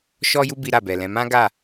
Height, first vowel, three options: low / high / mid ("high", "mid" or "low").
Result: mid